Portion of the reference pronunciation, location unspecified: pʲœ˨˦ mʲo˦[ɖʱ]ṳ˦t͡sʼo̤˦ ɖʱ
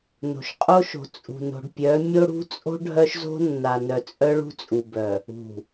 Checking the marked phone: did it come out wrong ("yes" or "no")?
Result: yes